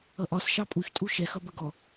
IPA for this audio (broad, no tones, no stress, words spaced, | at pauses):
ʌʔɒs ʃɑpʼuçtʼu ʃɛxʌ bəɡɔ